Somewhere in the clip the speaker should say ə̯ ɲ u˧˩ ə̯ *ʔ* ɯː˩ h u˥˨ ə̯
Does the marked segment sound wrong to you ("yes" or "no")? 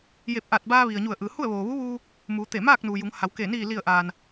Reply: no